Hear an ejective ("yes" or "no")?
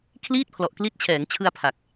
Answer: no